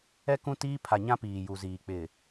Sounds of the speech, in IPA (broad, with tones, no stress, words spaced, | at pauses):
ɛ˦ kũ˦ tiː˦pʰa˨ɲã˦ piː˨ju˨ziː˨ k͡pɪ˨